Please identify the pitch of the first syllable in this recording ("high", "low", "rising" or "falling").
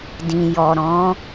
low